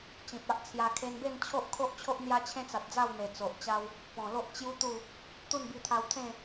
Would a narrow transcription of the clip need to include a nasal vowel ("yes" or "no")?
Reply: yes